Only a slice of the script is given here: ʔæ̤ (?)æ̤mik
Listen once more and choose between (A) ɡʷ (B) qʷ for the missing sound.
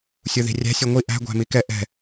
A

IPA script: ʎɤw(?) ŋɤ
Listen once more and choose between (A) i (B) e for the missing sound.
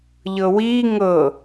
A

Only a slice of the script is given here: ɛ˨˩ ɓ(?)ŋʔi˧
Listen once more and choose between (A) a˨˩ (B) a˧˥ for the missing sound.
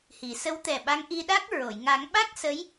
B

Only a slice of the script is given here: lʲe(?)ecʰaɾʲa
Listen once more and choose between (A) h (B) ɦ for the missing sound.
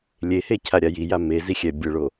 A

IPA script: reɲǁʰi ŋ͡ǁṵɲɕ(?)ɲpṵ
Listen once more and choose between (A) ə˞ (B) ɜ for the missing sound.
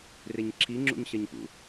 B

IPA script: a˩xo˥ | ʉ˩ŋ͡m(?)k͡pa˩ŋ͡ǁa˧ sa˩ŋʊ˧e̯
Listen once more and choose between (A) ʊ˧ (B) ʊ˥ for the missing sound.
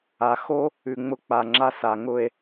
A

